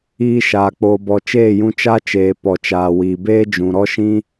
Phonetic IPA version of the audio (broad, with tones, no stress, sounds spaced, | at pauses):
iː˧ ʃ aː˨ k͡p oː˨ b ɔ˨ t͡ʃ eː˦˨ j ũ˧ t͡ʃ a˦ t͡ʃ eː˨ p ɔ˨ t͡ʃ aː˨ w iː˨ b eː˦ d͡ʒ ũ˨ ɾ ɔ˦ ʃ ĩ˦